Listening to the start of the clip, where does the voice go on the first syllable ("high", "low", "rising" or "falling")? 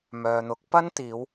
low